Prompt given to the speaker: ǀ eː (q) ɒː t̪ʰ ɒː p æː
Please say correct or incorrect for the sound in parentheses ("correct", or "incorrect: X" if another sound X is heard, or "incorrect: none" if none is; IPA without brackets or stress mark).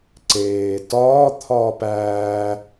incorrect: t